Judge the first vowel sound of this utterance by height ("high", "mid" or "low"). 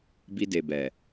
high